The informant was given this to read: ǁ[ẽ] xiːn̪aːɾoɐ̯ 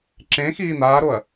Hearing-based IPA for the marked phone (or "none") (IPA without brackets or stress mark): ẽ